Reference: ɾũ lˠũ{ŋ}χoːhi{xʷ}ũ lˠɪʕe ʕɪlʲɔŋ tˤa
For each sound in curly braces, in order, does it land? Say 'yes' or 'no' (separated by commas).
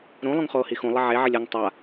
yes, no